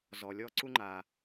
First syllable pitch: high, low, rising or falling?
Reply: low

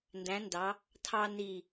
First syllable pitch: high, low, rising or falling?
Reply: rising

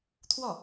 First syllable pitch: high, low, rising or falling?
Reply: falling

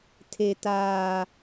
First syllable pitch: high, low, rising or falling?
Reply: low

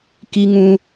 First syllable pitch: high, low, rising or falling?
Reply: high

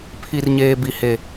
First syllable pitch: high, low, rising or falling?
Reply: low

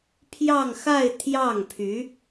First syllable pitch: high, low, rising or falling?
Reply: falling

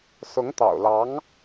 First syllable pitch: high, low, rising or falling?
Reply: rising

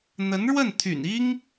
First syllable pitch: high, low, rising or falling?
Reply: rising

